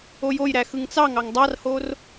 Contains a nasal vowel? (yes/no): no